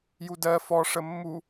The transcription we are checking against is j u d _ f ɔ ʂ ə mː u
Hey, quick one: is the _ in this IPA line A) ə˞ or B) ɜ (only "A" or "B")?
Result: B